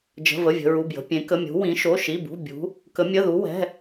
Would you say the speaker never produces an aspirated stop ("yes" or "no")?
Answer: yes